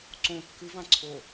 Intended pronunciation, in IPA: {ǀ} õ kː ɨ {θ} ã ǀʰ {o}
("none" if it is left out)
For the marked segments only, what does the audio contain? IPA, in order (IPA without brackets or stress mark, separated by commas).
ǀ, v, o